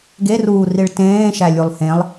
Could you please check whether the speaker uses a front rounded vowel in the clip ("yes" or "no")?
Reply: no